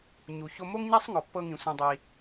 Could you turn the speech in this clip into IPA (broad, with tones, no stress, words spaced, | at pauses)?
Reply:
ɲu˩ço˧mo˥ŋɲa˥sˤ ŋɔ˩pːɤ˧ŋĩ˩ sʷĩ˩dˤi˩